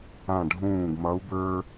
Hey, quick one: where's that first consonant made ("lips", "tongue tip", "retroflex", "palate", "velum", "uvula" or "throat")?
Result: retroflex